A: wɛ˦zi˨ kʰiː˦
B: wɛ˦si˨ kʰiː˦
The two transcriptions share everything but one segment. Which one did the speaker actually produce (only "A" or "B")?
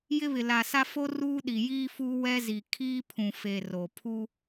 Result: A